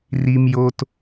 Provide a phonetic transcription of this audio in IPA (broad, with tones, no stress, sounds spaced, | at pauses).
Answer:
r i˩ m j o˩ t